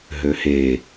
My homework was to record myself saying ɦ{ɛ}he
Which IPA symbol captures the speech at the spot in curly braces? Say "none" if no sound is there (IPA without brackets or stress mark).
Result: ø